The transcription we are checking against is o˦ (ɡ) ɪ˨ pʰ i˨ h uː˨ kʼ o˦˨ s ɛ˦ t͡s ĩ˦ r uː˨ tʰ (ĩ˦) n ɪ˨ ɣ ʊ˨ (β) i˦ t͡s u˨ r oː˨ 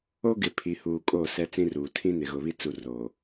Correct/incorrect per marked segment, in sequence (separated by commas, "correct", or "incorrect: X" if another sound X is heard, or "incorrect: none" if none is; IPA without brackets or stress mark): correct, correct, correct